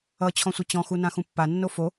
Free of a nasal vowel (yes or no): no